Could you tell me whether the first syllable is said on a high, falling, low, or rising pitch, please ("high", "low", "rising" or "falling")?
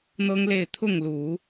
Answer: high